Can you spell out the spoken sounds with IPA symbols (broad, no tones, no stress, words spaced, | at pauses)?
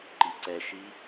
ǃiǀɛʃi